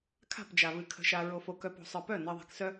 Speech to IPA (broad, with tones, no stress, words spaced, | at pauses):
kʰa̤˦˨pd͡ʒa˨βɨ˨ kʰə̤˨ʃa˨ ɹo˨fo˨kœ˨p o̤˨sˤə˞˨pœ˦˨ nɜ˨ðˤa̤˨ksœ˦